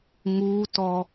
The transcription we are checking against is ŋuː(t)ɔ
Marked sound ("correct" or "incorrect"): correct